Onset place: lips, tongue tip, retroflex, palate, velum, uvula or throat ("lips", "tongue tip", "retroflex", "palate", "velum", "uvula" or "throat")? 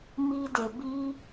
lips